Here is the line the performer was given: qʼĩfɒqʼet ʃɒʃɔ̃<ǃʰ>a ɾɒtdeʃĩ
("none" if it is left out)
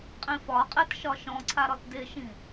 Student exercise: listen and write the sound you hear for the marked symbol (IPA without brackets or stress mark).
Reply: ǀʰ